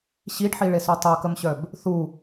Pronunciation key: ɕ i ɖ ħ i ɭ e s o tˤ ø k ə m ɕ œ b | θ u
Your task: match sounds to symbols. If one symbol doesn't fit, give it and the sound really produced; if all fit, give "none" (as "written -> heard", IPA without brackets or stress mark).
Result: none